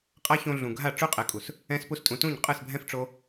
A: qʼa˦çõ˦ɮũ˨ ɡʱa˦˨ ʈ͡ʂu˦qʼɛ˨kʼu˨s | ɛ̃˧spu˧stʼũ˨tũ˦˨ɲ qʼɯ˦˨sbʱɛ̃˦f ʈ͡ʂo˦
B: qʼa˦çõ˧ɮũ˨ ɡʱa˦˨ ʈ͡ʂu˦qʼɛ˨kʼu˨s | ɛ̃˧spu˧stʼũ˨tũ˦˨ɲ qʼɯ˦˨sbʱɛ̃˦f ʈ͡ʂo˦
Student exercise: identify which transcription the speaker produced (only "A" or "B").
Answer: B